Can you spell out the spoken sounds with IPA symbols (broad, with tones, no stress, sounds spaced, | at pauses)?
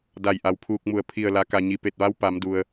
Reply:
d a˧˩ j ʔ a˩ w pʰ uː˧ k̚ m u˧˩ ə̯ pʰ i˧˩ ə̯ l a˩˧ k a˩ ɲ i˩ p e˧˩ t̚ ʋ a˧˥ w p a˩˧ m d u˩ ə̯